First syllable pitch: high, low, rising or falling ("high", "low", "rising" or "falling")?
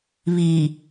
low